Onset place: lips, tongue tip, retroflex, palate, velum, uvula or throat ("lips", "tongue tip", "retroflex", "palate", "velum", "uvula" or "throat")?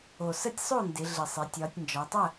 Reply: tongue tip